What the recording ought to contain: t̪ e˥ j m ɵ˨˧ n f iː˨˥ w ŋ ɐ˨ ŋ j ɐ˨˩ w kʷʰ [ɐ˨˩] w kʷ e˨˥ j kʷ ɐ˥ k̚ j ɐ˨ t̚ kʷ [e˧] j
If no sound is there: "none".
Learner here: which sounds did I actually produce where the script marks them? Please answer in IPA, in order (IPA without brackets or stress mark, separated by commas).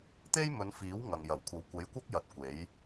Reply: ɐ˨˧, e˨˥